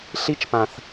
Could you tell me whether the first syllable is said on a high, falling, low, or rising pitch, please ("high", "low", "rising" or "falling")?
high